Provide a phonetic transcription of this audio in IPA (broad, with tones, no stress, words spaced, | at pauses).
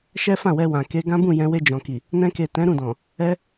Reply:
ʃɛ˦fã˦˨wɛ˧wã˨ ke˧ɡã˦ bũ˦˨jɛ̃˧ we˧d͡ʒɔ̃˨ki˨ | nɛ̃˧ke˨ tɛ̃˨˦ɾũ˦˨dɔ̃˨ | ɛ˦